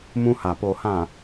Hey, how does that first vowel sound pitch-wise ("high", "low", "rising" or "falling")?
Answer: high